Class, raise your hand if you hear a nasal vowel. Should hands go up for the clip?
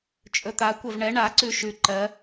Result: no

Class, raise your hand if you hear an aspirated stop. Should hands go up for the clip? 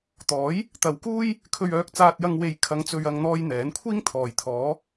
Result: yes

